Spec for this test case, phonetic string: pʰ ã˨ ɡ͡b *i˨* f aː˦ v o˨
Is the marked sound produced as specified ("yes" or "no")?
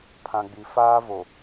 yes